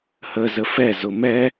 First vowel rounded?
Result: no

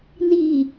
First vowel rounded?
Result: no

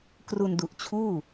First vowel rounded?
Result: yes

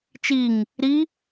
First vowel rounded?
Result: no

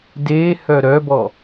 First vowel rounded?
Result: no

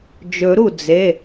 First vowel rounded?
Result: yes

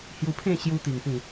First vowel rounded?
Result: yes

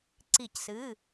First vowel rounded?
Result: no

